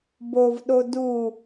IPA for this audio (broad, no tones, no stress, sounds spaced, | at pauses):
b o v ɗ o d u